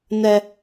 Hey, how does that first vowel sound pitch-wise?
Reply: high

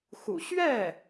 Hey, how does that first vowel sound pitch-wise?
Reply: low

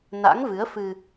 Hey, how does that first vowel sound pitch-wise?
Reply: rising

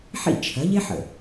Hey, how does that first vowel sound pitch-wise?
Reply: falling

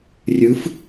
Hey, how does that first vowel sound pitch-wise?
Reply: rising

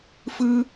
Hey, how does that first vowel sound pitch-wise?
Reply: high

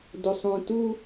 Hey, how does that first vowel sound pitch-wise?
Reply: low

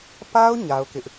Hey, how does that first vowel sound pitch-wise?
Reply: high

